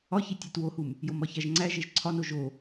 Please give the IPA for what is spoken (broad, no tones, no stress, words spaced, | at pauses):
ɒçi tʲætwohum | jomɒçæʒŋ͡ǀæ ʒeʒǀʰɒno ʒo